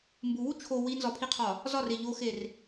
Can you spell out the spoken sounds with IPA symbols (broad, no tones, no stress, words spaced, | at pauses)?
mbuwu t͡ʃʰo winzɒpʰiqʰɒ | zɒre ʎoxer